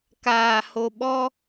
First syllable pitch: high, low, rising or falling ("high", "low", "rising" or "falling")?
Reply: low